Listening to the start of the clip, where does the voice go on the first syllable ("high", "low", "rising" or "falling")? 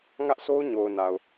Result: high